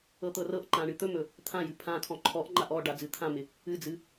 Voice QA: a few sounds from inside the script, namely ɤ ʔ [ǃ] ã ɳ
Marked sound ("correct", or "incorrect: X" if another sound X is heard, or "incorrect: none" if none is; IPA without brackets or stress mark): correct